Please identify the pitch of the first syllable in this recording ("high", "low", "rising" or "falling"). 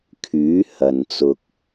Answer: rising